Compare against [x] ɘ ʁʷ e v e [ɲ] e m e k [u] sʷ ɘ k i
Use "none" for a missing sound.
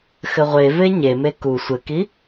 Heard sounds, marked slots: x, ɲ, u

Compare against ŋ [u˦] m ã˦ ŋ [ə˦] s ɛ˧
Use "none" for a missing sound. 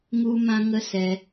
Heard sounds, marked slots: u˦, ə˦

